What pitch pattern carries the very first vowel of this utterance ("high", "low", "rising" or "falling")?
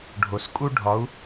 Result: low